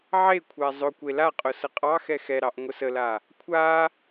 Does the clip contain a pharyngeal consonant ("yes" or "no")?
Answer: yes